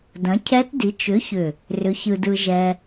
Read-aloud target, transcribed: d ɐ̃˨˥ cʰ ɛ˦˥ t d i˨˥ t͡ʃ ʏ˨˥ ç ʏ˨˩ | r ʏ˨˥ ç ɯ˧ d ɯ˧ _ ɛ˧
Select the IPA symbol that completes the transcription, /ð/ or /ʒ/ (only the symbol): ʒ